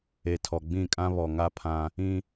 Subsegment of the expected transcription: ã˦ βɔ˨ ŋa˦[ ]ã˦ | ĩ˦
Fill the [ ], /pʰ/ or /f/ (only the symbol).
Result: pʰ